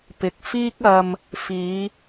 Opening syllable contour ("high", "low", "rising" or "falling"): low